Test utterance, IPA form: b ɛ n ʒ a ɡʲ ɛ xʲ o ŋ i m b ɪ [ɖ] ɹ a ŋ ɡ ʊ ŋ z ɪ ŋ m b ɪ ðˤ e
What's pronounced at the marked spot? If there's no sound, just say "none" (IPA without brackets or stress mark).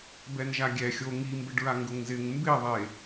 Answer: ɖ